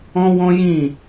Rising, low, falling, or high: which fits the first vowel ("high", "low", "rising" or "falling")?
high